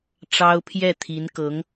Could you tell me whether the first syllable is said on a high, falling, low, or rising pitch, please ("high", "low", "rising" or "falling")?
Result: high